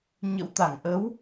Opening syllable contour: rising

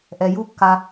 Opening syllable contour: low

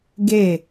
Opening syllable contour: falling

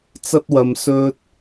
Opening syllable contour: high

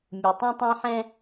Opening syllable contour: low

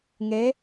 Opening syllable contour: rising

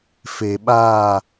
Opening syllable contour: low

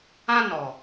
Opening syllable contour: high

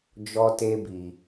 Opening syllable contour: high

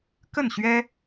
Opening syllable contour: falling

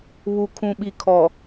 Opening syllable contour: low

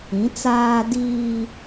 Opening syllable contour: rising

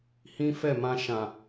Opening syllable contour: high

